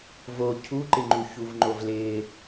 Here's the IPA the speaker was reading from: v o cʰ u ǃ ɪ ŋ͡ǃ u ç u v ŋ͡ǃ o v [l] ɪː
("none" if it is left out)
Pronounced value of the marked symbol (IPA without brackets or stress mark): l